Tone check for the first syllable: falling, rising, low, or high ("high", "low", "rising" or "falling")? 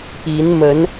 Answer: rising